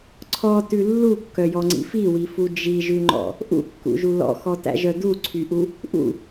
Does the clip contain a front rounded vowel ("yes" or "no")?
yes